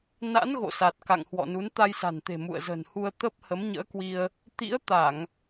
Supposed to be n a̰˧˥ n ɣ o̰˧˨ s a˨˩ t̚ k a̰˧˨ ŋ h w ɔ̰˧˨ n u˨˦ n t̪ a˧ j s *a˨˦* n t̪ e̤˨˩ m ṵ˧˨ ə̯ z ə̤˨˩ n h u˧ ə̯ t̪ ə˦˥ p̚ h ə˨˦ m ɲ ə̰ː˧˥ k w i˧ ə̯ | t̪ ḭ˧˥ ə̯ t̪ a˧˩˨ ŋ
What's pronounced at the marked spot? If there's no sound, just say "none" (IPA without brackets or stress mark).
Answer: a̤˨˩